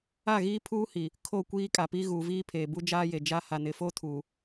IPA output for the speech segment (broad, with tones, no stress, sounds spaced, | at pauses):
a˦˨ ɣ iː˦ pʰ uː˦ h i˨ | kʰ o˦˨ kʷ iː˦ kʼ a˨ p i˦ ɣ uː˨ v iː˦ pʰ eː˨ b u˦ d͡ʒ aː˦ j e˨ d͡ʒ a˦ h a˨ n ɪ˨ f o˦ tʰ uː˨